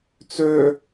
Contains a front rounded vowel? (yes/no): yes